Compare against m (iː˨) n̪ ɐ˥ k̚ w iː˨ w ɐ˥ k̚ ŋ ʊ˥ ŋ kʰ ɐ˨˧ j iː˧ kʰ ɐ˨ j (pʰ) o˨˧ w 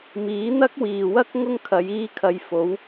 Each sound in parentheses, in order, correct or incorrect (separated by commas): incorrect, incorrect